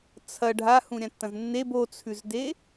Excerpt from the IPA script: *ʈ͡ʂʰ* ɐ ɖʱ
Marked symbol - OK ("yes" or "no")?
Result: no